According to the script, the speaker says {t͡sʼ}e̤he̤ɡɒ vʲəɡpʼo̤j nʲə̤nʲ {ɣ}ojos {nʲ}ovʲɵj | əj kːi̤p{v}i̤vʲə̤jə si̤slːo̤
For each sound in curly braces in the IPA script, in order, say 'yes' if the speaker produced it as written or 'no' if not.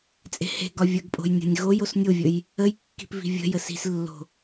yes, yes, yes, yes

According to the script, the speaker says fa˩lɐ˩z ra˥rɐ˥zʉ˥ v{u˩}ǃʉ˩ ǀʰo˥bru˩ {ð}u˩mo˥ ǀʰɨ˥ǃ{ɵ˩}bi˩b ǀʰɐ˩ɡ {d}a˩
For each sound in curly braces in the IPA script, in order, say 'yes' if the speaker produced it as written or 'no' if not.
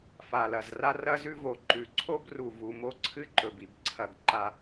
no, no, yes, no

